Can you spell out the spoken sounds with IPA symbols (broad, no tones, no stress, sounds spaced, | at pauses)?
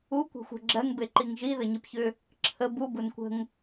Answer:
u kʷ e̤ xʷ ə̤ ɡ͡ǁ ɜ ŋ b e ǃ i ŋ ʒ i ð ə ɲ i p ç ʏ | ǁʰ ə b u b u n kʷ ə̤ ŋ